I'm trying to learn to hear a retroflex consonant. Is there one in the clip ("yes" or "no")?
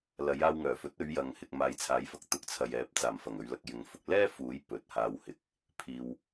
no